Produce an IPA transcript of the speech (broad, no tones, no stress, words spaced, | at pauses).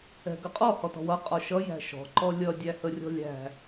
ɛ̤ɡəqʼɔ hɔtɔ̤wʌ qʼɔʃʌ jæ̤ʃɔ̤ ǃɔlʲʌ dʲæhərʲɔ̤lʲæ̤